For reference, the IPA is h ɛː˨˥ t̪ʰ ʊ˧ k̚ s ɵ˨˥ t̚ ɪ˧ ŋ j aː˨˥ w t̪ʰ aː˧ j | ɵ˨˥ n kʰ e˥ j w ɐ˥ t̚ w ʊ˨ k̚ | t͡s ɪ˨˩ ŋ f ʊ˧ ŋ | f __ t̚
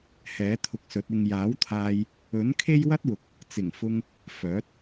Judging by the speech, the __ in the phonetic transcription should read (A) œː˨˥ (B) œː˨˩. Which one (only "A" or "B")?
A